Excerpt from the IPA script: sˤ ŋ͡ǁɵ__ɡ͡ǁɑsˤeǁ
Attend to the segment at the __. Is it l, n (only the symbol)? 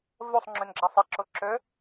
n